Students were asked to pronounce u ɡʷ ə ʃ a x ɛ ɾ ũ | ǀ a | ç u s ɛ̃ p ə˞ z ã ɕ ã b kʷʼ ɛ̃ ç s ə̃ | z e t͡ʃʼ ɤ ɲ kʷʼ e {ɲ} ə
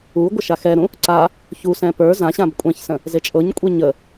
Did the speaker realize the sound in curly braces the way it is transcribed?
yes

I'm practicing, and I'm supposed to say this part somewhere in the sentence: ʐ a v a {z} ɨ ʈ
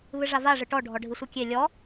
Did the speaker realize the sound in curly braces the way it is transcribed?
no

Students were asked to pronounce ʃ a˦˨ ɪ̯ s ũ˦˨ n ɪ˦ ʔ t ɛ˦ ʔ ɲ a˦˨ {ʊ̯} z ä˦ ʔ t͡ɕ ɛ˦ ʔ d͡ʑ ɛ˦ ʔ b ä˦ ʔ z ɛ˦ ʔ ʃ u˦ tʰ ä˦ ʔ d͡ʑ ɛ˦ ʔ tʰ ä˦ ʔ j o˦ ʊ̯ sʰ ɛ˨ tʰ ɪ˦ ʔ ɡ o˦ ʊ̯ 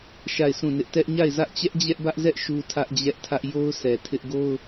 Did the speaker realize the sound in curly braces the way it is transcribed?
no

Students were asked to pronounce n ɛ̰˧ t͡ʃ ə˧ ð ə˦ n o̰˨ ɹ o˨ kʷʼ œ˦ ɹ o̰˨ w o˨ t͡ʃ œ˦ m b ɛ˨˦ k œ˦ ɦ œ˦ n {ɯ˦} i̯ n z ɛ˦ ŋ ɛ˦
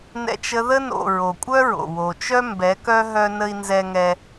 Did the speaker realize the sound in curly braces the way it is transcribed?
no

